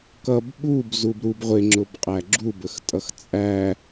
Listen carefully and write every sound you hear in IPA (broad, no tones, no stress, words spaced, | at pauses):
kʌb ɓub zubɾub ʁʷɪŋ͡ǁʊbqʼæ ɡ͡ǁubəxtʼʌx t͡sʼæ